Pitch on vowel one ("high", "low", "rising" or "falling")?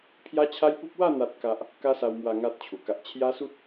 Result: high